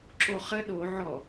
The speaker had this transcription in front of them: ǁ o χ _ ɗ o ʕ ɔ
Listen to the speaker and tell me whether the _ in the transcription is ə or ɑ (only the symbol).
ə